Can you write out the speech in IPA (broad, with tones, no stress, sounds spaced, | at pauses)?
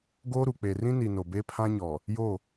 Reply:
ɡ oː˦ ɾ u˨ k͡p e˨ r ĩ˦ n i˨ n o˨ b e˦ pʰ ã˦ ɲ ɔ˨ | j o˦˨